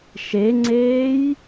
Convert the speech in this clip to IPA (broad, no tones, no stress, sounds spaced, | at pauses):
ʃ e ŋ͡ǀ eː j